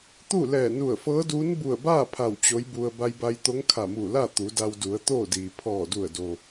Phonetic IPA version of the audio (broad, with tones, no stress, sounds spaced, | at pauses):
t̪ u˥˨ l ɛː˧˩ n u˧˩ ə̯ f ɤː˧˥ d uː˧˥ n b u˧˩ ə̯ b aː˥˨ pʰ a˧˩ w t͡ɕ o˧˥ j b u˧ ə̯ b a˧ j b a˧ j t̪ o˧˥ ŋ kʰ a˧˩ m uː˧˩ l a˥˨ t̪ u˩˧ d a˧ w d u˩˧ ə̯ t̪ oː˥˨ d iː˩ pʰ ɔː˧˩ d u˧˩ ə̯ d o˩